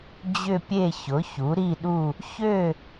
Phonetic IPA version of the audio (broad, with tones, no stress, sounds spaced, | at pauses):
d͡ʑ ʏ˥˧ pʲ e˥˧ ç ʊ˨˥ ç u˨˥ ɾ i˥˧ ɗ u˥˧ | ç ø˥˧